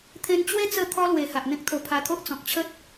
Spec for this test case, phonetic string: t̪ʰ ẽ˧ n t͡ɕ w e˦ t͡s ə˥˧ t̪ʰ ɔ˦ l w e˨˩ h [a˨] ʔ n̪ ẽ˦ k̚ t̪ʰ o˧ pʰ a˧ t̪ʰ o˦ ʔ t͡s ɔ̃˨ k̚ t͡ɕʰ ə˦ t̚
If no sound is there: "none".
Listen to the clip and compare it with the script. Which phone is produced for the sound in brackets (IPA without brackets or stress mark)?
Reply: a˨